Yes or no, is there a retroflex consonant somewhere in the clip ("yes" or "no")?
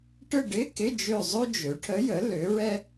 yes